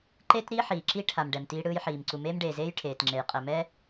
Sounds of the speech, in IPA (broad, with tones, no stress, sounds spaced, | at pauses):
ǃ e˥ t ɾ i˥ ħ iː˩ ǁ i˥ ʈʰ a˩ m ɖ ɛ˩ m t iː˥ ɽ ɯː˥ j ħ iː˩ m ǀ u˩ m eː˥ m ɖ eː˩ z eː˥ j ʈʰ eː˩ t ŋ͡ǁ e˩ j qʼ ɛ˩ m ɛː˥